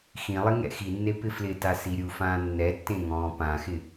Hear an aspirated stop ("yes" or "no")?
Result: no